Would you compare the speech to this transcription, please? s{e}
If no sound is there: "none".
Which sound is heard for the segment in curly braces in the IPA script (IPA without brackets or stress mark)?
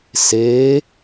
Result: e